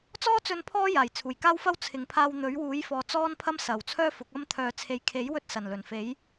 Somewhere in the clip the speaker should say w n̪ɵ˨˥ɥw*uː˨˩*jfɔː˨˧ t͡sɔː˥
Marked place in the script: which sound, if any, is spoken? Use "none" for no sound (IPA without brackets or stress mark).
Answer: uː˨˥